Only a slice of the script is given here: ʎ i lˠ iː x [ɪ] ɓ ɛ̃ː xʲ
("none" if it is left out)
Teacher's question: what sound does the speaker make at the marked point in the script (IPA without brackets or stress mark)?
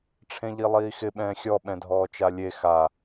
ɪ